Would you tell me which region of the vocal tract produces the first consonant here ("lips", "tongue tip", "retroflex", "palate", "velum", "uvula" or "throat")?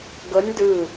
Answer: velum